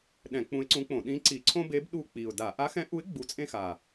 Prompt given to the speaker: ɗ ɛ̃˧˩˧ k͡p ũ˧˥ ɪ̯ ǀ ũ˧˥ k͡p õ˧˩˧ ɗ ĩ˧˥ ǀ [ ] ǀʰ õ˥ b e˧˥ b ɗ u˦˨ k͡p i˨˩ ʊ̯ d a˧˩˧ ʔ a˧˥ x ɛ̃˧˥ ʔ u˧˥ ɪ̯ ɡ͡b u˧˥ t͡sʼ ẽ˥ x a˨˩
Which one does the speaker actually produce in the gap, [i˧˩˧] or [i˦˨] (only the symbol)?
i˧˩˧